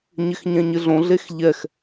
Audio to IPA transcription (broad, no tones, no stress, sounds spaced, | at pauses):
ɲ ɪ x ɲ ɛ̃ ɲ ɪ ɮ õ ɮ e x ʎ ɛ x